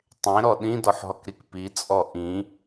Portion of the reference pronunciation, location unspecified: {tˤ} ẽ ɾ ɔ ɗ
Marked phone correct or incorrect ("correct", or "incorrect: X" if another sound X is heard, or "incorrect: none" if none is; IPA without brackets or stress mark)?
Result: correct